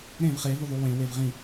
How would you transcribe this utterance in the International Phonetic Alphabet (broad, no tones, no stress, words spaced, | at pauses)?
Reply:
ɾẽv χevuðˤu wẽwev ʁĩ